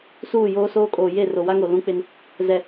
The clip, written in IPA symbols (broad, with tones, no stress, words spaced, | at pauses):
suː˦˨ joː˦soː˦kʼoː˨ je˦˨ro˨wa˦ŋo˨ lũ˦k͡pɪ˦n | zɛ˨